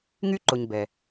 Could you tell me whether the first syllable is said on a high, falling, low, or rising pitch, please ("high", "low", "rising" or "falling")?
high